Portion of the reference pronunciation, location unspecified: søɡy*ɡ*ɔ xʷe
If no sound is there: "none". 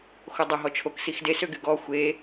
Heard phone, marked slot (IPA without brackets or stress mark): ɡ